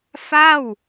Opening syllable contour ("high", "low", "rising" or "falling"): falling